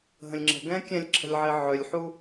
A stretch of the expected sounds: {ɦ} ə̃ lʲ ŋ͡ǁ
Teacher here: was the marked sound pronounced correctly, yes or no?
yes